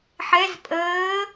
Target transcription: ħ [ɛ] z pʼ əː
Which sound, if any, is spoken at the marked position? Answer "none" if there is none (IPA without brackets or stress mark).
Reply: ɛ